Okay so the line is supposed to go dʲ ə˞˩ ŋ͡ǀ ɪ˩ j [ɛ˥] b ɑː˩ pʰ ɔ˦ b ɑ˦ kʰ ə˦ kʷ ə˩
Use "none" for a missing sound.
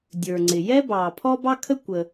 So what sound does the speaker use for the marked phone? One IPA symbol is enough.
ɛ˥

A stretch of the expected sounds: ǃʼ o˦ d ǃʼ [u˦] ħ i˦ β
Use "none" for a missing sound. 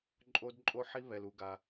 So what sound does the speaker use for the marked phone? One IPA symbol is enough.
o˦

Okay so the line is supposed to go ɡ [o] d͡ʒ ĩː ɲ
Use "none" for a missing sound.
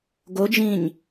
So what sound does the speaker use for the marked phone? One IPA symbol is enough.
o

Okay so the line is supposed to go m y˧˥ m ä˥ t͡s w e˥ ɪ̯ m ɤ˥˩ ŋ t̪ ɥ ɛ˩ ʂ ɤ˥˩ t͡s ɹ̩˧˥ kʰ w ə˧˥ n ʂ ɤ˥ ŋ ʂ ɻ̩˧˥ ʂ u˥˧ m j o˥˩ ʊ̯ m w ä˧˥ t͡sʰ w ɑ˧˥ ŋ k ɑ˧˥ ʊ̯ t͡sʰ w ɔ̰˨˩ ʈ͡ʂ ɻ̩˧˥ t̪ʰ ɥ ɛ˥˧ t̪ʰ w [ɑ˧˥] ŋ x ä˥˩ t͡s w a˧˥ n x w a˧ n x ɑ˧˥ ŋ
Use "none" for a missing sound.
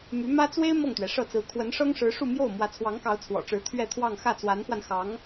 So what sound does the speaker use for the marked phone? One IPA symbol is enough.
ɑ˥˧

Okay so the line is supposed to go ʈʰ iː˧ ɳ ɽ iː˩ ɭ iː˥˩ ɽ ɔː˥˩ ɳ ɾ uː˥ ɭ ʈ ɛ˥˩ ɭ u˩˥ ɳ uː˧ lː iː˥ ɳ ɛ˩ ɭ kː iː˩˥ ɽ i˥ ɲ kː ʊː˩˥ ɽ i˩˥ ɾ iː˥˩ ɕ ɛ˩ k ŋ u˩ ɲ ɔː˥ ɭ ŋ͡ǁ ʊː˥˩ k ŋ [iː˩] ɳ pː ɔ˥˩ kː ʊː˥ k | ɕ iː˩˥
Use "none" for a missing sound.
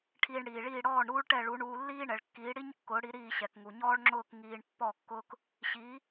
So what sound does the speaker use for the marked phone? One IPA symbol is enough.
iː˧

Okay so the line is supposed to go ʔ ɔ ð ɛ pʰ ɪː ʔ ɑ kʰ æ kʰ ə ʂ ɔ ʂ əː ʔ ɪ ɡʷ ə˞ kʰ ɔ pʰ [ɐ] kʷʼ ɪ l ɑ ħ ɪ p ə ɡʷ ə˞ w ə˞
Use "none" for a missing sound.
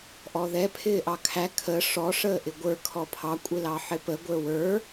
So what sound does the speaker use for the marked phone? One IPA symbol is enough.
ɑ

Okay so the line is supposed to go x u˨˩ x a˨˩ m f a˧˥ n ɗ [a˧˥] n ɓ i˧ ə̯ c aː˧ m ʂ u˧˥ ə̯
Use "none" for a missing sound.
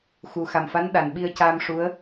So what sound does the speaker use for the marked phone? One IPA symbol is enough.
a˨˩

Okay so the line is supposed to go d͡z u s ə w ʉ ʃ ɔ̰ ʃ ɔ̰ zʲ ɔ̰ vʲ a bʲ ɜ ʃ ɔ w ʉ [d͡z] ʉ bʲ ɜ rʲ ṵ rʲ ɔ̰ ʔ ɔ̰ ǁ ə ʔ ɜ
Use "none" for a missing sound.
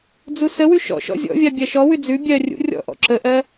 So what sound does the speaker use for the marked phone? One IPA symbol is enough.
d͡z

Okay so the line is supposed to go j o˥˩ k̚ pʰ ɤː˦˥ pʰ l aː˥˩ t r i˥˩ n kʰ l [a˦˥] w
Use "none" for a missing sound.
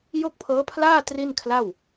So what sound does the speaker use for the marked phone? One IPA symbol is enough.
a˥˩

